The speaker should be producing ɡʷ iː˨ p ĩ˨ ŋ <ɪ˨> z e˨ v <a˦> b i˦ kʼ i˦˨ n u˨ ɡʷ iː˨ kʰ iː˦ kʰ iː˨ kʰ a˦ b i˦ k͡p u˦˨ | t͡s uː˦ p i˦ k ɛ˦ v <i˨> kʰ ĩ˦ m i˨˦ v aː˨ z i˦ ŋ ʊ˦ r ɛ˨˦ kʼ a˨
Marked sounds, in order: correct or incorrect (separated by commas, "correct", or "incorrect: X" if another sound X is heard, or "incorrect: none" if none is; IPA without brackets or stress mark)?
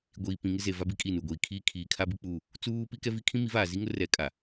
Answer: incorrect: ɪ˦, correct, incorrect: i˦